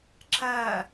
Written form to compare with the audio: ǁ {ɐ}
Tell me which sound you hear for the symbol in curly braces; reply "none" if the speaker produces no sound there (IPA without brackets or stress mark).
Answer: ɐ